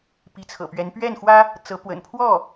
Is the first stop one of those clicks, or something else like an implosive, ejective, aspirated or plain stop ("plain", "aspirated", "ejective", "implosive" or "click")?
plain